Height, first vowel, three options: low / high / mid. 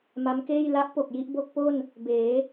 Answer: low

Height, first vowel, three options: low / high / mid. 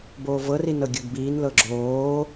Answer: mid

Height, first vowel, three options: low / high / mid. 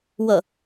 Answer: mid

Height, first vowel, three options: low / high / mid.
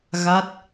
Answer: low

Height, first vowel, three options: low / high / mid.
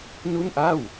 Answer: high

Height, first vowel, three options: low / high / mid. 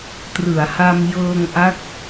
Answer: high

